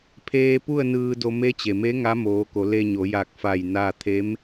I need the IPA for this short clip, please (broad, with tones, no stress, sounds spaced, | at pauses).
pʰ eː˧ p u˥˨ ə̯ n ɯː˧ d o˧ m e˧˥ t͡ɕ e˩ m e˧˥ ŋ a˧˥ m oː˩˧ k o˩˧ l e˧ ɲ o˩˧ j a˧˩ k̚ f a˧˩ j n a˥˨ t̪ʰ e˧˥ m